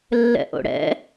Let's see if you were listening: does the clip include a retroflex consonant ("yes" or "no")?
yes